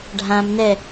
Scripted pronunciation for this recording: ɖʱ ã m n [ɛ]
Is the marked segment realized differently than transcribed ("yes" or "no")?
no